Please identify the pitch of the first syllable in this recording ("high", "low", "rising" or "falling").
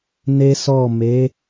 high